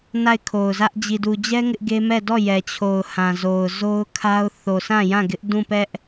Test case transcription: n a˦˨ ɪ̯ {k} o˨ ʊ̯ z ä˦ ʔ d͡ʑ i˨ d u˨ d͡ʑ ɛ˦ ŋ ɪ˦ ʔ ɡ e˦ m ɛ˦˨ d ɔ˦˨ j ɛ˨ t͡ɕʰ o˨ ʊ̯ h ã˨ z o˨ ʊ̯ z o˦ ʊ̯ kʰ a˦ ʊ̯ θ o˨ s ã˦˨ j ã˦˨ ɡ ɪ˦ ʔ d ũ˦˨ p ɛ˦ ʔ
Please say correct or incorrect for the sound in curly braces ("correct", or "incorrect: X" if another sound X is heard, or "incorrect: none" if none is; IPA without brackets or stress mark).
incorrect: kʰ